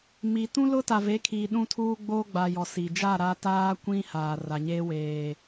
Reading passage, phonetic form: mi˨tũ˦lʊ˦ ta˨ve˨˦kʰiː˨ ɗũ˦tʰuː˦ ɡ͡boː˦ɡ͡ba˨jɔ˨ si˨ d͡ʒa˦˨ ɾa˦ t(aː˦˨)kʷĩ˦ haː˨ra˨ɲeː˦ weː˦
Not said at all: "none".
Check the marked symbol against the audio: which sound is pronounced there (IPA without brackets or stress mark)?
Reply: aː˦